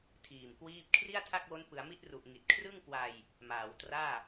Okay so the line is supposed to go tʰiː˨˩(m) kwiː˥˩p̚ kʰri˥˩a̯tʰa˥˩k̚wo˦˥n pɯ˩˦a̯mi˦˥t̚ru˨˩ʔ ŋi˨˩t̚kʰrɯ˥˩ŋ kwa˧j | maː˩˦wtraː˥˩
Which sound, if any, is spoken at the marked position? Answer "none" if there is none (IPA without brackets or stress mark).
m